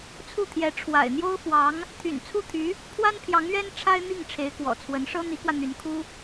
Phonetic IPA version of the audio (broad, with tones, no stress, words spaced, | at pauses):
t͡sʰu˥˩t̪ʰjɛ˧˥ ʈ͡ʂʰwa̰˨˩ɪ̯n̪jo˥ʊ̯fwɑ˧˥ŋ | t̪ʰy̰˨˩nt͡sʰu˥˩t̪ʰy˧˥ | pʰwa˥npʰjɑ˧˥ŋɥɛ˥n ʈ͡ʂʰa˥ɪ̯n̪i˥˩ŋ ʈ͡ʂʰe˧˥ɪ̯kwɔ̰˨˩t͡sʰwə˧˥n ʂɤ˥n̪i˧˥kwä˧ n̪y˧˥n kʰu˥